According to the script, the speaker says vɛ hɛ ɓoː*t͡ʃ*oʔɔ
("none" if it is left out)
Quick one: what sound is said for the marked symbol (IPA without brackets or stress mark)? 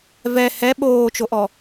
t͡ʃ